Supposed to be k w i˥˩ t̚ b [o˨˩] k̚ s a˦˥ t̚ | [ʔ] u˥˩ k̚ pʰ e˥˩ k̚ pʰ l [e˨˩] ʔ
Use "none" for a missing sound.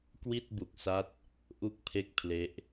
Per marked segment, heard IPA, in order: u˨˩, ʔ, e˦˥

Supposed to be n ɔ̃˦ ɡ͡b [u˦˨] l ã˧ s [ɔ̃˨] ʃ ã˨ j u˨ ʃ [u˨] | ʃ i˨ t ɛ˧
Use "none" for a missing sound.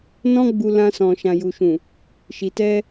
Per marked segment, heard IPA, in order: u˧, ɔ̃˨, ũ˨

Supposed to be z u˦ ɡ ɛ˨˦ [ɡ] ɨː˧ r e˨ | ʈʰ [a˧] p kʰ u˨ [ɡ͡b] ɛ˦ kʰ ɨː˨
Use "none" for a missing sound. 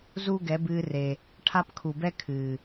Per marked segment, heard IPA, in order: b, a˦, b

